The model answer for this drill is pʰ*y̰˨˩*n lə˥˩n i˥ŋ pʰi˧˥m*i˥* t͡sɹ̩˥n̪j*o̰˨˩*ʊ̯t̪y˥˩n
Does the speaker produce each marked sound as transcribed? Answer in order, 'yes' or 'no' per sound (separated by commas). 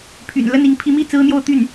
yes, no, no